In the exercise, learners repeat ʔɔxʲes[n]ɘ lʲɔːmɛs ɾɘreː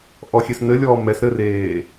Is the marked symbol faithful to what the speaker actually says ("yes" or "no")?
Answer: yes